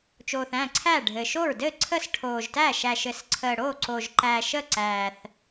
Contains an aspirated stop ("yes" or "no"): yes